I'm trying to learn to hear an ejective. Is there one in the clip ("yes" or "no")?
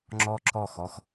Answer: no